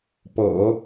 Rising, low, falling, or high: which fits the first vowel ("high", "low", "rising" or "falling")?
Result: low